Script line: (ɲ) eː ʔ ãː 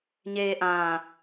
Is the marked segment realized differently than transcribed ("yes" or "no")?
no